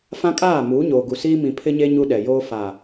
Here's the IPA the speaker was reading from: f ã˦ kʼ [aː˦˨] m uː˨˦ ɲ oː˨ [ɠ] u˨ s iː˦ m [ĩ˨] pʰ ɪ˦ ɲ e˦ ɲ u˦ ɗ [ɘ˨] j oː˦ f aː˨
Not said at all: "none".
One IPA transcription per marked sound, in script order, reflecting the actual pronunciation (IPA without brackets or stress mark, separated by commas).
aː˦˨, ɡ, ĩ˨, ɛ˨